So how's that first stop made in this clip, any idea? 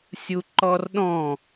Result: click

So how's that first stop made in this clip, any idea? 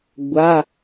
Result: plain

